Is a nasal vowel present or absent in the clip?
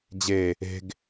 absent